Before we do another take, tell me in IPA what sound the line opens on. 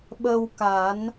ɓ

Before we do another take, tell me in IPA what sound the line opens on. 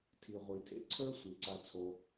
tʰ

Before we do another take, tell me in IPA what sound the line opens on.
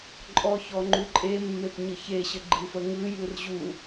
ǃʼ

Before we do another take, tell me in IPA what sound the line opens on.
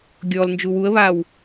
ɡʲ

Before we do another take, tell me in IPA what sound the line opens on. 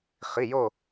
χ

